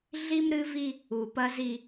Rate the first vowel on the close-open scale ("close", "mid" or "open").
close